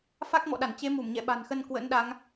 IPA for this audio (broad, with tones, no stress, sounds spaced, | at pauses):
f a˦˥ k̚ m ɔ̰˧˨ ɗ a˧˩ n t͡ɕ e˨˦ m u˧˩ m ɲ ɛ̰˧˨ ɓ a̤˨˩ n x ə˧ n k w ə̰˧˥ n ɗ a˨˦ ŋ